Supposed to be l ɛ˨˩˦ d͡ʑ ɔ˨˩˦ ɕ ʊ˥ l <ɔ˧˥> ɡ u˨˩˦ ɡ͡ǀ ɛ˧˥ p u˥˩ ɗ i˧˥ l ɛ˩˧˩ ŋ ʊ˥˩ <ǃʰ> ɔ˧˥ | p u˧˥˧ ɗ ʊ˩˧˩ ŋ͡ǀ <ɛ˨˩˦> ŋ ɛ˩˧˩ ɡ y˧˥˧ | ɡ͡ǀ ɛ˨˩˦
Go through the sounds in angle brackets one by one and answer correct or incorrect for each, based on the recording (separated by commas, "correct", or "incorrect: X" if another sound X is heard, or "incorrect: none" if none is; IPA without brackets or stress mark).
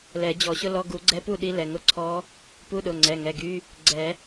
incorrect: ɔ˧˥˧, incorrect: ǀʰ, incorrect: ɛ˩˧˩